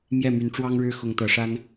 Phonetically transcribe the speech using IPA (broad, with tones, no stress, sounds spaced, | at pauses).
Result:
m j ɛ˥˩ m y˧˥ n ʈ͡ʂ w ɑ˥ ŋ ɻ ɻ̩˥ x ʊ˧˥ ŋ t̪ ɤ˨˩ ʂ a˥ n